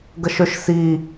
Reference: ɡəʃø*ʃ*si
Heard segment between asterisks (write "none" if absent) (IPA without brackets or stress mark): ʃ